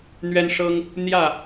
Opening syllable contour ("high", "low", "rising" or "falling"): high